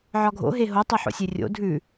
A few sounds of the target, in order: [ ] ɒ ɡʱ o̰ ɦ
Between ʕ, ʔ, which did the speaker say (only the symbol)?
ʕ